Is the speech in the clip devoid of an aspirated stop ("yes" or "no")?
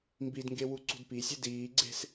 yes